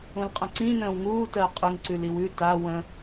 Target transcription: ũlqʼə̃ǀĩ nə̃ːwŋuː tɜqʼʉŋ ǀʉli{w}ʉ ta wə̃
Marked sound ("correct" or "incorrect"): correct